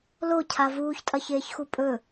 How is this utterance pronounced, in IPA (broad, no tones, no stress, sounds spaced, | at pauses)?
l o cʰ a v uː ç tʼ ɐ ç eː ç x u pʼ ɵ